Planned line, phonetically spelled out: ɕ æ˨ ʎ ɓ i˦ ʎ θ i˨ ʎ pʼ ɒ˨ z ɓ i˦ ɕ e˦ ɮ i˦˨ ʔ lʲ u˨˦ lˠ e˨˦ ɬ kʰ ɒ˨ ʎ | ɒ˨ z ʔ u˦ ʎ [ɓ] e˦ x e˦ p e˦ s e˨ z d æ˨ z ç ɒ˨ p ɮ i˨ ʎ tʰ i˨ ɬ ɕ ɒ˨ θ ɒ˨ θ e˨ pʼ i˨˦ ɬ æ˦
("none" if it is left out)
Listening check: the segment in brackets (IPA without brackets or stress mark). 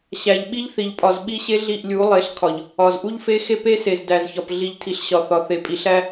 f